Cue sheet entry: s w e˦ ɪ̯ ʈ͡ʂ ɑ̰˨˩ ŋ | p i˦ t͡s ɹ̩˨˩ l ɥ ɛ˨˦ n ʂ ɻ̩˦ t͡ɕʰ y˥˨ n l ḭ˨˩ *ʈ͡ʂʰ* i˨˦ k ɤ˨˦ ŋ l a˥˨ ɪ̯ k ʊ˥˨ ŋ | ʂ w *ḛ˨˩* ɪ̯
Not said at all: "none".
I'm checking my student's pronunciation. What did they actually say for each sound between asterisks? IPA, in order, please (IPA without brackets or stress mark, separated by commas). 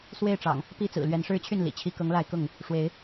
t͡ɕʰ, e˨˦